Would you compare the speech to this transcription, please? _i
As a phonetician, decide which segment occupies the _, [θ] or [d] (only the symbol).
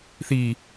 θ